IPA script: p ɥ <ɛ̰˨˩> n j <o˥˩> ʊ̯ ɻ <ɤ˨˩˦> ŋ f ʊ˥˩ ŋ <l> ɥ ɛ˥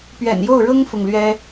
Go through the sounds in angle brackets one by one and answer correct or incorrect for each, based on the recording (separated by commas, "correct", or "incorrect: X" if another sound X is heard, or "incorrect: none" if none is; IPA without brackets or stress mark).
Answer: correct, correct, incorrect: ɤ˥, correct